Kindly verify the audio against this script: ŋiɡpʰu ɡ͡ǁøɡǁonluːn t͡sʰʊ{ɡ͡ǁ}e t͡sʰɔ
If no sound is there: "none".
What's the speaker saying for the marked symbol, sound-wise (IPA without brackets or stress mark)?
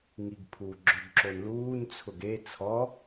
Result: ɡ